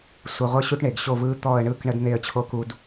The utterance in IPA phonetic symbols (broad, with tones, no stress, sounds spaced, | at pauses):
sʷ ə˧ ʁʷ ə˥ ɕ u˥ ʈ ɳ e˩˧ ɡ ɕ o˥˧ v ɯ˥ t̪ ɔ˥˧ ə̯ ɳ ɯ˥˧ k ɳ ə˥ d n̪ e˥˧ ə̯ t͡ɕʰ o˥ k u˥ d